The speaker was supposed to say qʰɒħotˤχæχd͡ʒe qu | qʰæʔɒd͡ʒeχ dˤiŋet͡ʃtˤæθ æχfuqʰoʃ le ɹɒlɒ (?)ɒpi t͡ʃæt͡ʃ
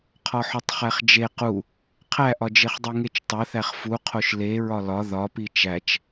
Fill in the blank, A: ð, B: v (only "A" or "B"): A